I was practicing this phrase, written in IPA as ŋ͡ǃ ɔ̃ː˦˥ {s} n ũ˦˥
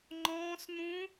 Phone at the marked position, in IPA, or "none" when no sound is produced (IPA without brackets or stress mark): s